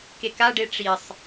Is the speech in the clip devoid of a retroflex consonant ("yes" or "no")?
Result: no